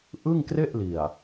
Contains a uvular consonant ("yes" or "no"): no